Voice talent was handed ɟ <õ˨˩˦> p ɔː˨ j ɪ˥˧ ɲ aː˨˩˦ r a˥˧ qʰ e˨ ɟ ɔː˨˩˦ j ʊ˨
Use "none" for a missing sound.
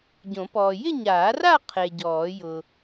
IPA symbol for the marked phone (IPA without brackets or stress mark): õ˨˩˦